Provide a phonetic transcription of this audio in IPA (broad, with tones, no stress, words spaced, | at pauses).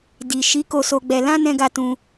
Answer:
di˨ ʃi˨˦ ko˧so˧ɡ͡bɛ˧ lã˧ nɛ̃˧ɡa˧tũ˧